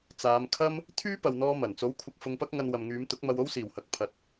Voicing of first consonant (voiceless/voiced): voiceless